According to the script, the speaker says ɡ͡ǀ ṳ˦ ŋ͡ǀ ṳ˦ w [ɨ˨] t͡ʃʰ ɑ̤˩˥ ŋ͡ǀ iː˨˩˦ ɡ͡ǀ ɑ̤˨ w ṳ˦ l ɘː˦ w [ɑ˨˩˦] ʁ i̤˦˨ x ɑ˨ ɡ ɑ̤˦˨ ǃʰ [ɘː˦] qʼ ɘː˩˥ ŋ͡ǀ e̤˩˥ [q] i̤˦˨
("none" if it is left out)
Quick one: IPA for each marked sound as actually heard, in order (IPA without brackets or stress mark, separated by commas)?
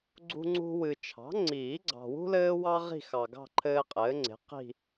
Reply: ɨ˨, ɑ˦, ɘː˦, q